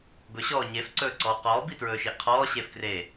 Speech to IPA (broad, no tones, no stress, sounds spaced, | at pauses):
b ɵ ɕ ɔː ɲ e f ǀ ɵː ǀ ɔː q ɔː b i t ɹ ɵː ʃ e ʔ qʰ ɔː ɕ eː f k r eː